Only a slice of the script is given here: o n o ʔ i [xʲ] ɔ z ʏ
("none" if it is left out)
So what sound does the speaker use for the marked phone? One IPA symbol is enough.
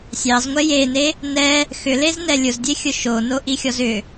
xʲ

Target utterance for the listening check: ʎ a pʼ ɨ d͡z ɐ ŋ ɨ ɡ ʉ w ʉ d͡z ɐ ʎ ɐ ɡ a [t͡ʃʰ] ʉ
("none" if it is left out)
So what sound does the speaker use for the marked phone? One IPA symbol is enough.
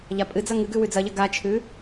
t͡ʃʰ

